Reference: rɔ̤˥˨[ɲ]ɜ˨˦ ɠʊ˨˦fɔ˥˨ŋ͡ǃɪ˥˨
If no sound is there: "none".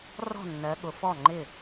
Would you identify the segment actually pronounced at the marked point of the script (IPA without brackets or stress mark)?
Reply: nː